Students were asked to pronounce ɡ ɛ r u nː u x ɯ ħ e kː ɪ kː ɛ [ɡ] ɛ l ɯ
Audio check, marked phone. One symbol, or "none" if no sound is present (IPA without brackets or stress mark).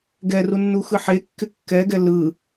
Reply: ɡ